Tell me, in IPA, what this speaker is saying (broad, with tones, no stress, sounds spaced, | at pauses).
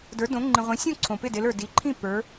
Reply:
d ə˞˨˦ d õ˨˦ ŋ͡ǃ ĩ˨ ʁʷ ĩ˨˦ sʲ õ˥˨ ǀʰ õ˨ p ɪ˥˨ d ɪ˨˦ l ə˞˨ d i˨˦ ǃʰ ĩ˥˨ p ə˞˨˦